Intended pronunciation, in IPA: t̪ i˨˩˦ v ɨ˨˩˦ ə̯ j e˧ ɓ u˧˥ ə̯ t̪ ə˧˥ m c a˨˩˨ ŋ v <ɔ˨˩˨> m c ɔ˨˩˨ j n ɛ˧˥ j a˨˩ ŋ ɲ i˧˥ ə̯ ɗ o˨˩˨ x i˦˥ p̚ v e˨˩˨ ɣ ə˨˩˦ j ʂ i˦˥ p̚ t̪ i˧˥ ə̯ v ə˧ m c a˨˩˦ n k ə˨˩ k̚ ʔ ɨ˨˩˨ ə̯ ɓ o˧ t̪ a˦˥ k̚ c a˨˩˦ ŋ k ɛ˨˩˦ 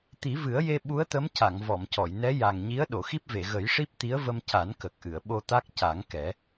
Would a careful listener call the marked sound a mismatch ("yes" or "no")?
no